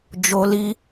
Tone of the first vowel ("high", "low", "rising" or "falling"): high